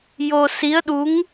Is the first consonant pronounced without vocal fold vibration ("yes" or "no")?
no